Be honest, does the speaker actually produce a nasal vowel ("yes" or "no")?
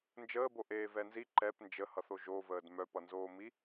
no